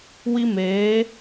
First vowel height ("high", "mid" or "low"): high